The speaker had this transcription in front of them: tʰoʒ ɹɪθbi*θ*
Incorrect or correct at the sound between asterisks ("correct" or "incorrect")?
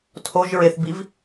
incorrect